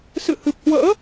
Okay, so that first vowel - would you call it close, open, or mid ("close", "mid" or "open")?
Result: close